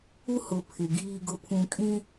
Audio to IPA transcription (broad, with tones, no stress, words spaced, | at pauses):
u˦ hʊ˨ pʰɪ˨ ɡiː˨ɡʊ˨pʰũ˨ kʼĩ˦